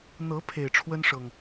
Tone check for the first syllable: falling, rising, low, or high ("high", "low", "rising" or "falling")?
rising